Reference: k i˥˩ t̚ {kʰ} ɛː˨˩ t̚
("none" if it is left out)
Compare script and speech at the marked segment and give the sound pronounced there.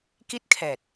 kʰ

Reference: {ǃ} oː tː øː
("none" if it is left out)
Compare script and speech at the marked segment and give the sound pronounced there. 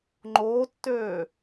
ŋ͡ǃ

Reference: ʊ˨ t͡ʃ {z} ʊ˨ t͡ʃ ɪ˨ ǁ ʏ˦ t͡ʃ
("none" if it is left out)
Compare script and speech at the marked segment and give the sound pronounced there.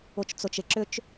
t͡s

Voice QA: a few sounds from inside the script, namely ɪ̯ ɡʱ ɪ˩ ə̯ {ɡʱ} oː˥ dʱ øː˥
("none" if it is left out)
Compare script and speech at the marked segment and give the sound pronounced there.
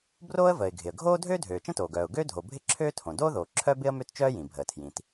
ɡʱ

